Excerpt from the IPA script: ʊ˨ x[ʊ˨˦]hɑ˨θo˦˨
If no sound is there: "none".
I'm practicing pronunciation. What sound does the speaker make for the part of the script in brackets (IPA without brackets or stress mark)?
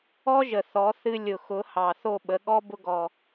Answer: ʊ˨˦